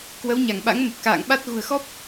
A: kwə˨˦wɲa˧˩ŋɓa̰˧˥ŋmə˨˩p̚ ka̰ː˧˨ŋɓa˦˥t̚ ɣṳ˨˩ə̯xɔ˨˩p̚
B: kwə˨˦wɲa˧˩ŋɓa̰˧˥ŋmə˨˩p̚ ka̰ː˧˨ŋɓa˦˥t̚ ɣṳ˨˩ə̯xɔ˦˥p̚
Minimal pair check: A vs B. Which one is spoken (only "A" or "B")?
B